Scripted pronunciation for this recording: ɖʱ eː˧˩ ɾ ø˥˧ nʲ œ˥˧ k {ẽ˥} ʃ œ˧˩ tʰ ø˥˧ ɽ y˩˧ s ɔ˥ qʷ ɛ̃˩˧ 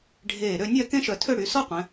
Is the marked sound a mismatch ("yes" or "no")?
no